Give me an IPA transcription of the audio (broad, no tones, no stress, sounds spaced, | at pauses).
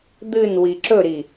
d̪ ɨ n w i ǁ ɵ ɾ i